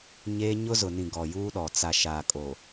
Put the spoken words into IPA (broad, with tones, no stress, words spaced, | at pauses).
ɲe˦ ɲʊ˦zʊ˨nĩ˨ ɡɔ˨juː˦ɗɔ˨ t͡sa˨ʃaː˨kʼo˨